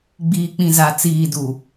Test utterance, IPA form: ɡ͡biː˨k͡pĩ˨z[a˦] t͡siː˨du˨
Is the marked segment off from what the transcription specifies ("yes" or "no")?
yes